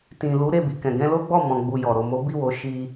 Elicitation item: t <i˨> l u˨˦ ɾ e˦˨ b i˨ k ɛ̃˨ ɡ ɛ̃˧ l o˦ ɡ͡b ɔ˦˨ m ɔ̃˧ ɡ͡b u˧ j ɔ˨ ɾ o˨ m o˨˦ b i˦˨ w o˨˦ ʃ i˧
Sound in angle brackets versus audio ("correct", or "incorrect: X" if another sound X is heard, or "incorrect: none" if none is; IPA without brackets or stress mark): incorrect: ĩ˨